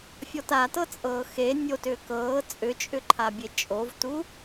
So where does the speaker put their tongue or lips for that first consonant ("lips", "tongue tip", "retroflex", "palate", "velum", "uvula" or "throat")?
lips